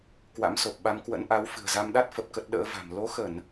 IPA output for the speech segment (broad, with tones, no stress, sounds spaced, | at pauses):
k w a̰˧˥ m s o˨˩ p̚ ɓ a˧ m k w ə̰˧˥ n ʔ a˨˦ w f ɨ̤˨˩ ə̯ z a˧ m ɗ a˦˥ t̚ f ə˨˩ p̚ k ə˦˥ t̚ ɗ ə̰ː˧˥ v a̤˨˩ m l o˨˦ x ə˧˩˨ n